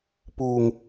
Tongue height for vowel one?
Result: high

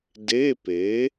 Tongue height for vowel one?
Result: mid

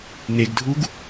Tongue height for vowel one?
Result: mid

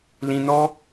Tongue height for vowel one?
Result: high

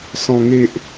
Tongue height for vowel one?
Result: mid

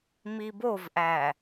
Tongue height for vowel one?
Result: high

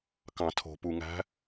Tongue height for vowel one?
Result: low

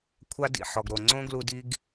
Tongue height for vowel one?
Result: low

